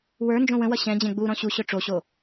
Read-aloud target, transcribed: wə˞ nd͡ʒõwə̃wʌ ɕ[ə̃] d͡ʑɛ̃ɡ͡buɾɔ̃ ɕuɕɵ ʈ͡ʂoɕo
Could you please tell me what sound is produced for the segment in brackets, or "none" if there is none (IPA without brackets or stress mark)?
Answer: ɛ̃